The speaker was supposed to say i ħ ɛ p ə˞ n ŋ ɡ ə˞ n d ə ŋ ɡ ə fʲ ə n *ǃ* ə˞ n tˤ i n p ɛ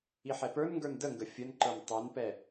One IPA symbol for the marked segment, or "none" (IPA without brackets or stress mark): ǃ